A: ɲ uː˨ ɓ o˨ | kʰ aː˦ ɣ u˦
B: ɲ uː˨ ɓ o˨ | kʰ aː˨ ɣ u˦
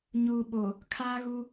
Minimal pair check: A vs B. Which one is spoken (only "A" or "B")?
A